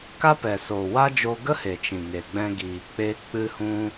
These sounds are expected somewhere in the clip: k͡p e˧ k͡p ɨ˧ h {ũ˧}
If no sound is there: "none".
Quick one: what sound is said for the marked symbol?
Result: ũ˧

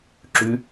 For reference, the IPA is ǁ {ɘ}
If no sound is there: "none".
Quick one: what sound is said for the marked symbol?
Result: ʉ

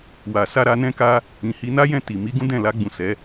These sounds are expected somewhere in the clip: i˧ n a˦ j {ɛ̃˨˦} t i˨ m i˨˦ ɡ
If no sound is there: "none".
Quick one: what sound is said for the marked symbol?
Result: ɛ̃˦˨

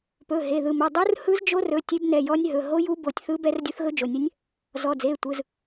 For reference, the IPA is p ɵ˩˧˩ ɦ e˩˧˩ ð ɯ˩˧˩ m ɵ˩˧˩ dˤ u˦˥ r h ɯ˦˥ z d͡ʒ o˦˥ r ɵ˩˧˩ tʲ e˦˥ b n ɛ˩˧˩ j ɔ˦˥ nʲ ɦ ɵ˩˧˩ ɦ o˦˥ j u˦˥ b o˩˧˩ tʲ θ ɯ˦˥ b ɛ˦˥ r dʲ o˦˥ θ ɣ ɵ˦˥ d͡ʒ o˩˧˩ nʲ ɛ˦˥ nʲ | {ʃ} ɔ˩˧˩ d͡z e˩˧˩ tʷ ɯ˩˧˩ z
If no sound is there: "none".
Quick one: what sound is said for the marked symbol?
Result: z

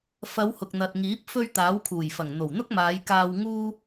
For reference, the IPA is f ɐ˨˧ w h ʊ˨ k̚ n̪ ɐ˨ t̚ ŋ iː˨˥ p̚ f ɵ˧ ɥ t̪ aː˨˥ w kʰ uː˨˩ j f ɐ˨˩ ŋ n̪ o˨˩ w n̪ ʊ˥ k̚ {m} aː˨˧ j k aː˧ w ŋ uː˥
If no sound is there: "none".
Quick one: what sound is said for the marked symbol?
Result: m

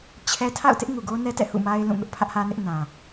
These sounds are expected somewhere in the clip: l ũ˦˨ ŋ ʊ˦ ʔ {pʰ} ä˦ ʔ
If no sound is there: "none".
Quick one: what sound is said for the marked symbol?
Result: pʰ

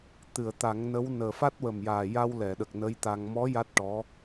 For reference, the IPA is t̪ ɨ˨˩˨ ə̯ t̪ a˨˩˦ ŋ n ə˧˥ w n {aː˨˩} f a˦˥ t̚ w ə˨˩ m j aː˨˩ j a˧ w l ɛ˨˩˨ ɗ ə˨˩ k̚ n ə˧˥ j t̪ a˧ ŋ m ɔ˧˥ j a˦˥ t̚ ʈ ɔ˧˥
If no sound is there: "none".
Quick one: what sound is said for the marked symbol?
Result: əː˨˩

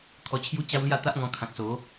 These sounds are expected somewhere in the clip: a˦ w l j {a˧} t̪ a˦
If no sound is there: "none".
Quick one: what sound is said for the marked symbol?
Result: a˥˧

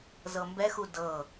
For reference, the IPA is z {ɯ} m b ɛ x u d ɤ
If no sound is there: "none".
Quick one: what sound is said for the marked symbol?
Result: ɤ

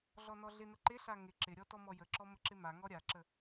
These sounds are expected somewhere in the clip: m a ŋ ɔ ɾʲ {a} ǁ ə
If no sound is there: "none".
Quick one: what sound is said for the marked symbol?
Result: a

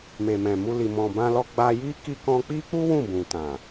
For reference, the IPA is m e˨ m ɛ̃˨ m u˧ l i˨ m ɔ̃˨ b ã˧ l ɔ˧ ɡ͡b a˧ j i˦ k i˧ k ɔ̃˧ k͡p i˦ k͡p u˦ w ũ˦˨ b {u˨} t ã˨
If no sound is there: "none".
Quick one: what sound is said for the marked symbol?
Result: ũ˨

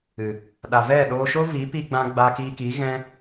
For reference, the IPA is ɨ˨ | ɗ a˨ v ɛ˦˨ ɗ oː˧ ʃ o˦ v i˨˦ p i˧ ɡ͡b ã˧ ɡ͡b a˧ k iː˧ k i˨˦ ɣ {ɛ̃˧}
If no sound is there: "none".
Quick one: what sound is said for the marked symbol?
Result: ɛ̃˦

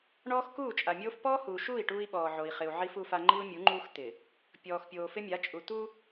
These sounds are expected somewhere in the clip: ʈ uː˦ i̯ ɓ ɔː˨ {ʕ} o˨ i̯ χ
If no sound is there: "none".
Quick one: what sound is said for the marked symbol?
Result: ʕ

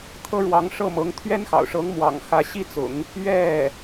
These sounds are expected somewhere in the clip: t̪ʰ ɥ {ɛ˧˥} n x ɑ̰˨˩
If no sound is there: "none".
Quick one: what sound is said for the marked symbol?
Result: ɛ˥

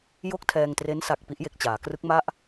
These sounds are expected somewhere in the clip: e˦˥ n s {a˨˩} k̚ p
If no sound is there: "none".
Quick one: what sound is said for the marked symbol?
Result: a˨˩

